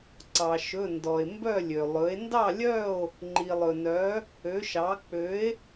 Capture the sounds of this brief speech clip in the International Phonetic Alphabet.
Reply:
ǀɑ˩ʃɵ˩˧˩ndɔ˩e̯ mbœ˥˨lʲø˩ lˠɵ˩˥e̯ ndɑ˥˨lʲœ˥˨o̯ | ŋ͡ǃi˩lˠɵ˩nœ˩˥ | ø˩˥ʃɑ˩˥ k͡pø˩˥e̯

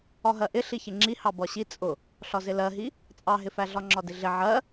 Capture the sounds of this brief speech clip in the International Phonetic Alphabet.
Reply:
ɒɦɜʔɪ ɬiçɪŋ͡ǁi hɑbɒɕi t͡sʼʊ | ɬɒzɪlɜɦi | t͡sʼɑɦɪfæ ɮɒŋ͡ǁɒdɪɮɪ ʕɜ

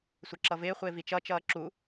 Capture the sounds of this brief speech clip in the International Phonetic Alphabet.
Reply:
sʷəǁʌvɪːχʷɪː vit͡ʃʌt͡ʃʌː ǁu

